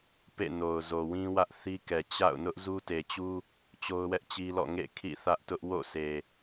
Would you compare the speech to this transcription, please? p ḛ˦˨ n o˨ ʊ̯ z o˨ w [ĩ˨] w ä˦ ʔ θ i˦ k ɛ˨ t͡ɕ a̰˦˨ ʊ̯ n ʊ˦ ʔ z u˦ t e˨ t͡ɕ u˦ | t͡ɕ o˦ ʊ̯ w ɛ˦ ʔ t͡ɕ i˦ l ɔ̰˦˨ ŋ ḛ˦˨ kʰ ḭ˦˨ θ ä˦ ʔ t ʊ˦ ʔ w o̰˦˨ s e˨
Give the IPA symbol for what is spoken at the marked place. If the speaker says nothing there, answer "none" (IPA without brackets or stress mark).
ĩ˦